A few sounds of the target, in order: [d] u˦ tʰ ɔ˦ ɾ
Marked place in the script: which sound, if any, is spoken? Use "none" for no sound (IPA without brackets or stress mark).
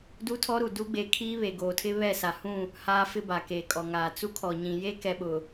d